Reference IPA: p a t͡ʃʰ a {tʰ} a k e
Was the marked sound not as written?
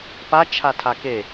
no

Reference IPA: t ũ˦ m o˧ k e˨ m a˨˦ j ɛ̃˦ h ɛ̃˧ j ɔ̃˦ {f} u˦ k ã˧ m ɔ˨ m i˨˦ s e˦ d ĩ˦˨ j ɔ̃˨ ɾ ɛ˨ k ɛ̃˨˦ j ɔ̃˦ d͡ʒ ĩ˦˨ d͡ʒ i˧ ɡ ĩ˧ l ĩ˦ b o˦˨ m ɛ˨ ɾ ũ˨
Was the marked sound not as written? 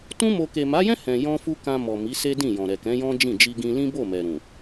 no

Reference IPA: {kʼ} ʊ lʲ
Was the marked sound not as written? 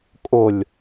no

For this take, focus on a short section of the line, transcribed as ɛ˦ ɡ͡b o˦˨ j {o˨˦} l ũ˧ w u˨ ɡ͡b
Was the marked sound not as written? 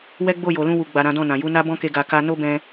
yes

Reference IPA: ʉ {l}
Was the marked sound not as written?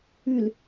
no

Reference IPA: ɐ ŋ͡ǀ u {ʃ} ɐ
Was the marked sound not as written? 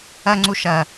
no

